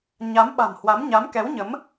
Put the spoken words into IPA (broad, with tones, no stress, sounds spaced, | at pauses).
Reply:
ɲ a˨˦ m ɓ a̤˨˩ m h w a˨˦ m ɲ a˨˦ m k ɛ˨˦ w ɲ ə˨˦ m